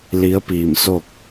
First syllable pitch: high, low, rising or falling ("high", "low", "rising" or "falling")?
rising